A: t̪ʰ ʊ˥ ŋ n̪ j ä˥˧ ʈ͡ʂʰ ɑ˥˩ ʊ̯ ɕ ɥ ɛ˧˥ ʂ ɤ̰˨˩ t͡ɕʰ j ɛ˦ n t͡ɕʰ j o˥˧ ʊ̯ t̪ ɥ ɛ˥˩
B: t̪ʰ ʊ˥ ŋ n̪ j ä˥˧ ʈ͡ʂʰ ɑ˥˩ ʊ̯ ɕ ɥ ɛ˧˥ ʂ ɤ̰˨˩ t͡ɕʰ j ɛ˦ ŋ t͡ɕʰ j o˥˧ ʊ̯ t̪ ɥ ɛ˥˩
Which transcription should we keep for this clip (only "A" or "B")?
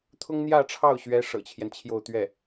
A